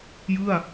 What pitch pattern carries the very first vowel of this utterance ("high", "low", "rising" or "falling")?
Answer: falling